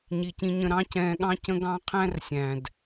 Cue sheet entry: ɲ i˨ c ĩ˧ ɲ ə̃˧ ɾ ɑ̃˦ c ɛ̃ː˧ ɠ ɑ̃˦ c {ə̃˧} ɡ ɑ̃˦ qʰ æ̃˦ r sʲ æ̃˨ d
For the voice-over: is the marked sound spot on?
no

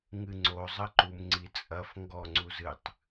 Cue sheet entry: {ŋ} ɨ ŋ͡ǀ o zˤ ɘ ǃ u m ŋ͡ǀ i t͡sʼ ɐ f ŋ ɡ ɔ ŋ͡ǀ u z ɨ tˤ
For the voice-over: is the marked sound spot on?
yes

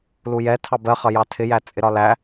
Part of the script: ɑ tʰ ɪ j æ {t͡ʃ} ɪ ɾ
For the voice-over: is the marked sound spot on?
no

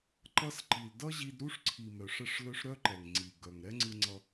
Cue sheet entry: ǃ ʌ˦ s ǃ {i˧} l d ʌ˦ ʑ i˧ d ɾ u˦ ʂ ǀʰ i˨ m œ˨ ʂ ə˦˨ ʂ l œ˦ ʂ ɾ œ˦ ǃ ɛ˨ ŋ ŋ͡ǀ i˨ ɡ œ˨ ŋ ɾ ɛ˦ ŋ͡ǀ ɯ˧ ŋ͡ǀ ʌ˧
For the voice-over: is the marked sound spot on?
no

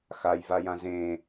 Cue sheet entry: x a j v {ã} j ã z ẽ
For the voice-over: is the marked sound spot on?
no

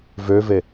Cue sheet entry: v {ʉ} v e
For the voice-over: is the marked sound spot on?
no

